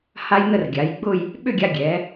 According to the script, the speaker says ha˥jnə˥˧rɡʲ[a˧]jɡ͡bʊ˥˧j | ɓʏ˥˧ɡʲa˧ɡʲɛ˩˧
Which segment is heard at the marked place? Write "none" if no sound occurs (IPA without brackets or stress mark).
a˩˧